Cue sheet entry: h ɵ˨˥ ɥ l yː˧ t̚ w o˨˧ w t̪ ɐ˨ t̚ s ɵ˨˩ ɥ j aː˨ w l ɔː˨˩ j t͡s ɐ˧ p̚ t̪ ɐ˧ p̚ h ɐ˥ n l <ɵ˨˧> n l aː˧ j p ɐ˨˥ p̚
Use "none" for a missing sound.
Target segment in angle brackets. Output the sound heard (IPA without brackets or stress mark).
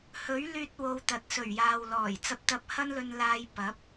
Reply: ɵ˧